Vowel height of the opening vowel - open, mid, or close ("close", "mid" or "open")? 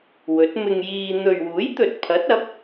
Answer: mid